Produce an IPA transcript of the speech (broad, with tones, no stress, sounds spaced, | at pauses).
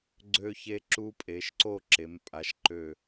ɡ͡ǀ ø˧ ç e˧ ǁ u˧ pʼ e˩˧ ʃ ǀ o˥˧ ǁ e˩˧ m pʼ a˩˧ ʃ ǃ ø˧˩